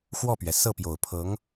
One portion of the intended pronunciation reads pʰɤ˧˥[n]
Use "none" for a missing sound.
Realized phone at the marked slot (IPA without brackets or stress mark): ŋ